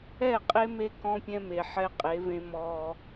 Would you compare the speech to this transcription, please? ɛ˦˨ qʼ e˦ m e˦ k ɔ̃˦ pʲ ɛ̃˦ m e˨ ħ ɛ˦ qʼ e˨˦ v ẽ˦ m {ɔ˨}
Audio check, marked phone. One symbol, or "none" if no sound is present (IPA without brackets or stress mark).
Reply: ɔ˦